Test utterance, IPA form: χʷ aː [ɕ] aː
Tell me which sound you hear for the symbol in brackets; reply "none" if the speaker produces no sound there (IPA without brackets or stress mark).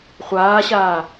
ɕ